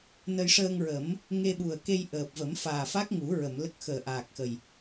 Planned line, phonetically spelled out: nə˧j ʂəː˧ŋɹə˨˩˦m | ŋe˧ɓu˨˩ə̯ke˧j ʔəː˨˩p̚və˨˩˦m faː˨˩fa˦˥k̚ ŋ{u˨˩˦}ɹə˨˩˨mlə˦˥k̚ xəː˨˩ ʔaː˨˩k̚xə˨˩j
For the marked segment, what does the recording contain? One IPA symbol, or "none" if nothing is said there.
u˨˩˦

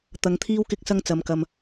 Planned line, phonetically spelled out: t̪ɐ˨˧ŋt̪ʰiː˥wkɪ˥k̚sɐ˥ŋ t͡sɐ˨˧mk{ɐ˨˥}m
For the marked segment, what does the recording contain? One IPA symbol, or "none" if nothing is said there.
ɐ˧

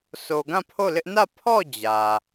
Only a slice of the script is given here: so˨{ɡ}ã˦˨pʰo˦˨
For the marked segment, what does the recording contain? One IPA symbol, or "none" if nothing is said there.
ɡ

